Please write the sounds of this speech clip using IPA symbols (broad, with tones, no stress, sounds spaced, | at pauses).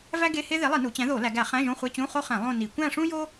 v æ˥ ɡ e˧˥˧ h e˥ ð e˨˥ lˠ i˧˩˧ n u˩˧ t͡ɕ æ̃˨˥ ð o˧˩˧ l æ˩˧ ɡ æ˧˩˧ χ æ̃˧˥˧ ʒ õ˧˥˧ χʷ e˧˥˧ t͡ɕ ũ˧˥˧ χ o˥ χ æ̃˧˩˧ lˠ õ˥˧ n i˧˩˧ kʷ æ̃˥˧ ʂ ũ˥ j o˥